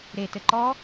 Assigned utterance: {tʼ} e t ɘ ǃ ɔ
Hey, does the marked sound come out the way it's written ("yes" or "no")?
no